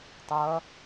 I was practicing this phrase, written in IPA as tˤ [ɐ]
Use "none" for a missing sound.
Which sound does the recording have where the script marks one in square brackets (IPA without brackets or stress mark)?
ɐ